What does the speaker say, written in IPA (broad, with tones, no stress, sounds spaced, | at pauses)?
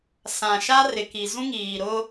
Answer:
s ã˨ ʃ a˦ r ɪ˨ k i˨ z ũ˦ ŋ iː˨ ɾ ʊ˦